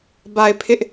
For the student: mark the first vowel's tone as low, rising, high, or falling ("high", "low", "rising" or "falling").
low